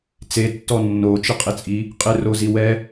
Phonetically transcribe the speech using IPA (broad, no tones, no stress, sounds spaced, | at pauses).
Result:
t͡s e tː ɔ nː o t͡ʃ ɪ qʼ ɪ t͡sʼ i | qʼ ɪ r o z i w ɛ